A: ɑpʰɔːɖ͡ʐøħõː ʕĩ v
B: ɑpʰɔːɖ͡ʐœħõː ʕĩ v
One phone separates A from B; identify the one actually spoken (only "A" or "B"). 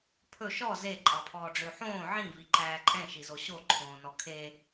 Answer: A